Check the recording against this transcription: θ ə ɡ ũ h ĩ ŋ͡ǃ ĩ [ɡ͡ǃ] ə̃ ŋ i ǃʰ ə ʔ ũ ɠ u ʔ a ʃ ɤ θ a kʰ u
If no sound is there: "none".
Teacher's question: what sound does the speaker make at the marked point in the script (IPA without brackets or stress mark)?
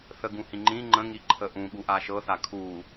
ŋ͡ǃ